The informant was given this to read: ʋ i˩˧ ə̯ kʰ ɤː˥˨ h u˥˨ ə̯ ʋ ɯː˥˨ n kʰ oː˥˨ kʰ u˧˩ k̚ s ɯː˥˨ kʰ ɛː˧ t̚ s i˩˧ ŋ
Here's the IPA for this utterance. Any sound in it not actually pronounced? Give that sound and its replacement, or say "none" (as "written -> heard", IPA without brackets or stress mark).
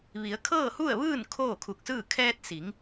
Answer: none